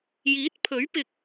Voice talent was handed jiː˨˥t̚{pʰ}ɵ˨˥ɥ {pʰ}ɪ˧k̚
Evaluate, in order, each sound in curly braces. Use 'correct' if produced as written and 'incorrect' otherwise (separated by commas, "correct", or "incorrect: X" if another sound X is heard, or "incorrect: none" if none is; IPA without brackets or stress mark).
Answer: correct, incorrect: p